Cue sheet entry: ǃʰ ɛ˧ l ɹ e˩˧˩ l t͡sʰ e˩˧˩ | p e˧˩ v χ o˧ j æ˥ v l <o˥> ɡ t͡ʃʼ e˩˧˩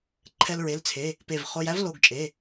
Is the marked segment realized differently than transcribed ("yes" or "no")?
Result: yes